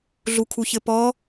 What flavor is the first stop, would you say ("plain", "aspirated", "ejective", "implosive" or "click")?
aspirated